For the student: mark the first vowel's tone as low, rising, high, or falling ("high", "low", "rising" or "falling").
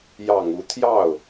low